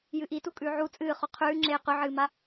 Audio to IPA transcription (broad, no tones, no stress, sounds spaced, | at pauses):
j ɨ ʔ i t u kʼ ʉ ʕ u t͡sʼ ɨː χ o qʰ ʉː ŋ͡ǁ eː q ʉ ʕ ɨː m a